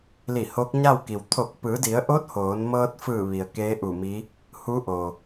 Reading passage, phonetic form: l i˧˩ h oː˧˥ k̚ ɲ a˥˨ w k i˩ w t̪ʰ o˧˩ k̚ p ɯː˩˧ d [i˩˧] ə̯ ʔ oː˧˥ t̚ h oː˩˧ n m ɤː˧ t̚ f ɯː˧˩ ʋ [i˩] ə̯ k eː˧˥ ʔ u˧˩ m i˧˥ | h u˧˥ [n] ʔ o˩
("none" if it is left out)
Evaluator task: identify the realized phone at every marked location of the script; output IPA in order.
i˩˧, i˩, none

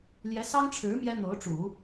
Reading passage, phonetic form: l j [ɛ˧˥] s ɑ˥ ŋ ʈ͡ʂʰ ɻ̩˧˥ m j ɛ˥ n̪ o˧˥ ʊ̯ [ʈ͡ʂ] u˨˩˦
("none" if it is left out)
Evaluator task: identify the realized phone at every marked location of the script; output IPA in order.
ɛ˧˥, ʈ͡ʂ

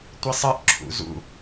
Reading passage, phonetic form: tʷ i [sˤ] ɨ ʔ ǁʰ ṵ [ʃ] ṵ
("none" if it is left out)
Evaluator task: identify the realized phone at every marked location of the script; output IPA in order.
sˤ, z

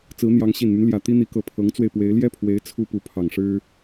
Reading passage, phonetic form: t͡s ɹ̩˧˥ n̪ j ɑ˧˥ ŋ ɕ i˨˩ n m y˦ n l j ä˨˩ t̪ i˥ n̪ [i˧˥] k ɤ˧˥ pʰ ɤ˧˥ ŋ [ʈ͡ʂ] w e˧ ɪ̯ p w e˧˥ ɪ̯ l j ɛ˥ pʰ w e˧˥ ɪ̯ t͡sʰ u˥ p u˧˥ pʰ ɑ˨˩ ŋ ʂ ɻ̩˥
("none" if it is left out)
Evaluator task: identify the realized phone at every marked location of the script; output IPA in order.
i˧˥, t͡s

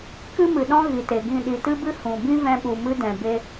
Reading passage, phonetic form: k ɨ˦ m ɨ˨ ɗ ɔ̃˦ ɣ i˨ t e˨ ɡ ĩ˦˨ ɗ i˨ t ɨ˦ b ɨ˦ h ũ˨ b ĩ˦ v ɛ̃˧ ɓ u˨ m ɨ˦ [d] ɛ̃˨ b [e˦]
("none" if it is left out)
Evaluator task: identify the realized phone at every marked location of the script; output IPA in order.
d, e˦

